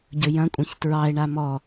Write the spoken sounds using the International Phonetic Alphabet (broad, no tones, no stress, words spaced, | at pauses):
ɟɵjɐ̃kʷʼɐ̃ç tɹɑe̯ɳa mɔ